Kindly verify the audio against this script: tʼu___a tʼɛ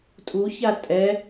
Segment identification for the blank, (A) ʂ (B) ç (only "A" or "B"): B